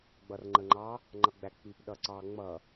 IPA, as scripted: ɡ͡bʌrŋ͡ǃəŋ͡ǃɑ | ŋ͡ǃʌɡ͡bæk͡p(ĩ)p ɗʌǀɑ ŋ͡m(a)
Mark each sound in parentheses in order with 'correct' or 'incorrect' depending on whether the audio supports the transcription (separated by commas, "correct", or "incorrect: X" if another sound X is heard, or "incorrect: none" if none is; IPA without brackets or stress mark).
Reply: incorrect: i, incorrect: ʌ